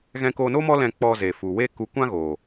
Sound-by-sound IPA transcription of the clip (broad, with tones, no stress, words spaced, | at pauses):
ɣɛ̃˧ko˧no˦ mɔ˦ lɛ̃˧ k͡pɔ˧ ze˨fu˨we˦ku˧ kʷã˦ɣoː˨